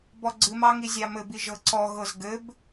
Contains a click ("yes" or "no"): yes